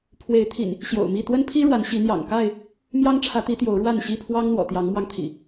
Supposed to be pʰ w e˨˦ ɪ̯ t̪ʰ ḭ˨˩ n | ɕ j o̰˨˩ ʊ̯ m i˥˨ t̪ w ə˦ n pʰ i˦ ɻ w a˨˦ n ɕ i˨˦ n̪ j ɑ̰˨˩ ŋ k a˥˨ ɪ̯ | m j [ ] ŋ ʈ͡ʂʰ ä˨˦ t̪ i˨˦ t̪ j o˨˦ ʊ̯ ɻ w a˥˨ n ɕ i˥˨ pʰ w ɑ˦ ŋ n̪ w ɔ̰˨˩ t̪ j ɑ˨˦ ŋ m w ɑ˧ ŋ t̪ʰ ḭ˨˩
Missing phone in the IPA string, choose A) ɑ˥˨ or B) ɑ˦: B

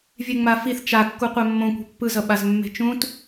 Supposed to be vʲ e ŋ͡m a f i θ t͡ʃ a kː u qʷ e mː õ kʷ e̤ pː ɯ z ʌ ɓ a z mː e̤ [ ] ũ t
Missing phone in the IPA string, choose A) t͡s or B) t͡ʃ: B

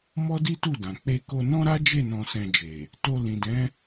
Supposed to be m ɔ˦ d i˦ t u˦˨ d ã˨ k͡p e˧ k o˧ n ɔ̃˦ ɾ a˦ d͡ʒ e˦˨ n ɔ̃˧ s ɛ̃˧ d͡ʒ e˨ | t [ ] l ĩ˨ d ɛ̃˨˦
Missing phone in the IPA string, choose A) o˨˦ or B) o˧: B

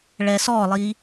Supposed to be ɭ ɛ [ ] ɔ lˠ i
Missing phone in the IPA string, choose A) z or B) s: B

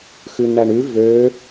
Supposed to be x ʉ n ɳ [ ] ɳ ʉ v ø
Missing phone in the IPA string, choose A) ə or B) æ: B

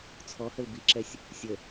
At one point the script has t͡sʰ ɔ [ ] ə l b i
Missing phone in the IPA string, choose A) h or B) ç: A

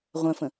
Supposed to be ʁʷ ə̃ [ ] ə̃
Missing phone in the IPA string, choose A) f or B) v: A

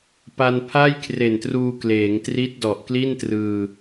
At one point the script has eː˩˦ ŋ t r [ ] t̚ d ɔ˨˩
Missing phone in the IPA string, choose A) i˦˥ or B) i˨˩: A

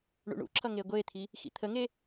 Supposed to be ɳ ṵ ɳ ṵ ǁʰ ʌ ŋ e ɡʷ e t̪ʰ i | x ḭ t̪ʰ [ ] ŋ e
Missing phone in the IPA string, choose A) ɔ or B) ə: B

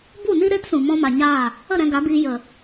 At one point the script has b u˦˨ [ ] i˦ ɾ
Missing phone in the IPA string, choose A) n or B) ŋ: A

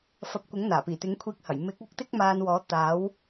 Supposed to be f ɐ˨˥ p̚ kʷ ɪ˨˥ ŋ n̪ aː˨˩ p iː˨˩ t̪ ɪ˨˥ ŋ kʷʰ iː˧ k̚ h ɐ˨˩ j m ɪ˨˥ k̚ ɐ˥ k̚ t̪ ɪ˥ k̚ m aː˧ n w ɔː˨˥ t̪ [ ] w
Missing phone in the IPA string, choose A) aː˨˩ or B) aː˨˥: B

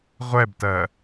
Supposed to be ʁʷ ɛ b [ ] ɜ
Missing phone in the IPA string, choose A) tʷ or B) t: B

